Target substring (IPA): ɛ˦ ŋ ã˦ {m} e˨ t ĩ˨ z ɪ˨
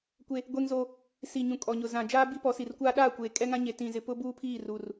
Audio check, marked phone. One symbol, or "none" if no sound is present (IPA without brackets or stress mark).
ɲ